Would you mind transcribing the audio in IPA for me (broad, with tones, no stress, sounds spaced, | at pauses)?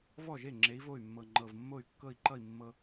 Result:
v ɔ˥˩ ʒ e˥˩ ŋ͡ǁ e˨˥ i̯ v o˥˩ y̯ mː ɤ˨˩ ŋ͡ǃ ɤ˨˩ v mː o˥˩ y̯ kː ɤ˥˩ i̯ ǃ ʌ˥˩ i̯ mː ɤ˧